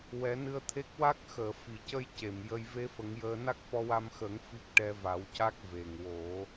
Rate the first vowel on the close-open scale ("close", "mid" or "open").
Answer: mid